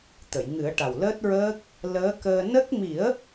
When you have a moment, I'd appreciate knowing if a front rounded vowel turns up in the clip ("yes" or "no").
no